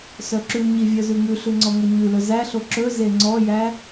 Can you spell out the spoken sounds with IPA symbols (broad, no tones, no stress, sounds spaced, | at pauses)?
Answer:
s œ ǁ ʉ ɲ i vʲ œ z ʉ ŋ ʉ ɬ ʉ ŋ͡ǀ ɔ ŋ ɵ ɲ ʉ l ɵ z æ ɬ o ǁ ɵ z e ŋ͡ǀ ɔ j æ